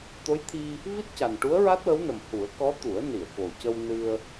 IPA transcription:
t̪ o˧˥ j t̪ʰ i˧ | v i˦˥ t̚ c a˨˩ n ʈ u˧˥ ə̯ ɹ a˦˥ t̚ w ə˧˥ w n ə˨˩ m h u˨˩˦ ə̯ k ɔ˧˥ t̪ u˨˩˦ ə̯ n i˨˩˨ ə̯ k o˨˩ c ə˧ w n ɨ˧ ə̯

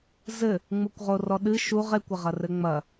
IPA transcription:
z ɘ | ŋ͡m u kʷ ʁ o r ɔ ɗ ɨ ʃ u ʁ e kʷ ɘ ʁ ɐ r ɘ ŋ͡m ɐ

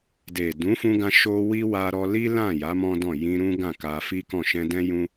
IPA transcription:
d e˨ d ũ˨˦ f ũ˧ ɡ ã˧ ʃ o˦ w i˦ w a˧ ɾ ɔ˧ l i˦ l ã˦˨ j a˨˦ m ɔ̃˦ d ɔ̃˦˨ j ĩ˧ ɾ ũ˦ ɡ ã˦˨ k a˧ f i˦ k ɔ̃˦˨ ʃ ɛ̃˧ d ɛ̃˦ j ũ˦

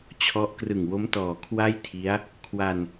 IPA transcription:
t͡ɕʰ ɔ˦˥ ʔ k r ɯ˨˩ ŋ w o˦˥ m t ɔː˨˩ kʰ w a˥˩ j tʰ i˦˥ a̯ | kʰ w a˧ n

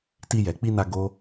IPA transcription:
t i˧ j ɛ˨ k͡p i˧ n a˧ ɡ o˦

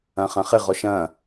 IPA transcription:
ɐ̃ χ ɐ̃ χ ɪ ʁ ɔ ʃ ɐ̃

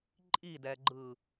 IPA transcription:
ǃʼ i d ɛ ɡ͡ǃ ɯ

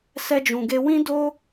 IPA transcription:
s ɛ˧ d͡ʒ ũ˨ ɡ e˧ w ĩ˦ d o˦

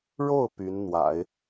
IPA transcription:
ɻ o˥˩ ʊ̯ p y˧˥ n n̪ w a̰˨˩˦ ɪ̯

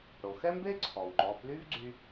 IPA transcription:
ɽ o˩ x ɛ˥ m b e˥ ǀʰ ɔ˩ w ŋ͡ǃ ɔ˩˧ p l y˥ v ɡ͡ǀ y˧

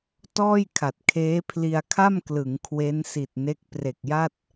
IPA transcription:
t ɔː˥˩ j kʰ a˨˩ t̚ kʰ eː˦˥ pʰ l i˧ a̯ kʰ a˥˩ m k l ɯ˩˦ ŋ kʰ w e˦˥ n s i˨˩ t̚ n e˦˥ k̚ p r e˨˩ k̚ j a˥˩ t̚

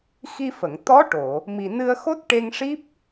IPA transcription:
x i˧ f ə˨˩˨ ŋ t̪ ɔ˧˥ ʈ o˨˩˨ | m i˨˩ n ɨ˧ ə̯ x o˦˥ t̚ ʈ e˧ ŋ ʂ i˦˥ p̚

